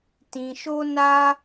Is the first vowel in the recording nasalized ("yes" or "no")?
yes